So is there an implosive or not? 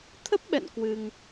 yes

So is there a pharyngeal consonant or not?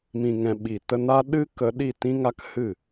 no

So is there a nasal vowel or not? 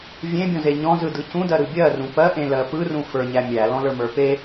yes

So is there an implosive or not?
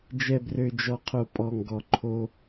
no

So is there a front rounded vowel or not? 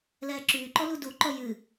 yes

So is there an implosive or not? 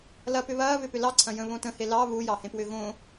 no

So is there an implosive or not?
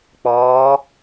no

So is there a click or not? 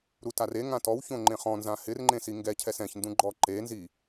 yes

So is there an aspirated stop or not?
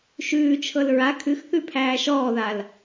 yes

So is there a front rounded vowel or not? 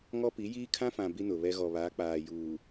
no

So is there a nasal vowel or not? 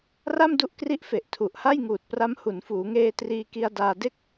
no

